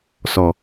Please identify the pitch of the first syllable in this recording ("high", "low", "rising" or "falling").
low